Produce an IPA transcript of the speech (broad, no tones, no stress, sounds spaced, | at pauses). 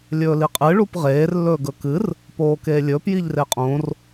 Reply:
lʲ ɵː l i qʼ ɨ ɭ u p ʁ eː r lː ɵː ɡ ɵ k ɨ r | p oː k eː lʲ ɵː p j i ʎ r e qʼ õ r